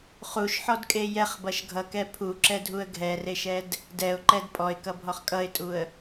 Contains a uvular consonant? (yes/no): yes